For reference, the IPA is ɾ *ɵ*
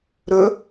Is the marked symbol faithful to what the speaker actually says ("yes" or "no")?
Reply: yes